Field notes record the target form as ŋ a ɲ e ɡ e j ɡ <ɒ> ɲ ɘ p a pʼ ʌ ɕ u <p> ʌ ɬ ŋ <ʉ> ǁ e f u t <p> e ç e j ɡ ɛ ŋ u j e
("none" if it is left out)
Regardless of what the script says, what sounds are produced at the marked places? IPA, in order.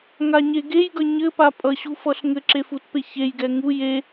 ʌ, f, ɘ, p

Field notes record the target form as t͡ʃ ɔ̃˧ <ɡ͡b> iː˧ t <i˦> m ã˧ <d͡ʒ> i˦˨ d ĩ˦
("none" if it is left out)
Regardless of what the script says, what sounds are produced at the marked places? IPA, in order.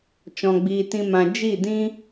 ɡ͡b, ĩ˦, d͡ʒ

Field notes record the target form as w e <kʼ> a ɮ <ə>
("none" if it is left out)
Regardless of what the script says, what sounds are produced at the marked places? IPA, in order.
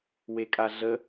kʼ, ə

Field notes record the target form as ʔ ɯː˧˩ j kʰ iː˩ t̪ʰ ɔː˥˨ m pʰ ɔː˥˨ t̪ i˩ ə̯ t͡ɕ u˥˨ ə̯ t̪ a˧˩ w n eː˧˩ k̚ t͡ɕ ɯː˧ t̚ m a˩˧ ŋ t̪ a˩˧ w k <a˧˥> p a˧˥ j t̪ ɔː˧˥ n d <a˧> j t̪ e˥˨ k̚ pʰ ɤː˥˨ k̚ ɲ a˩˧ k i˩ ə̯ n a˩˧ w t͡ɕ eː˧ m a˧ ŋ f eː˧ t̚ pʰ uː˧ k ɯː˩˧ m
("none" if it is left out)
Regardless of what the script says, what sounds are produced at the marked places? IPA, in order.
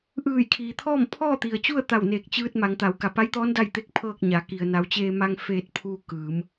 a˩, a˥˨

